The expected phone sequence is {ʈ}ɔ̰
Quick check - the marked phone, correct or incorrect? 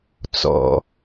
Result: incorrect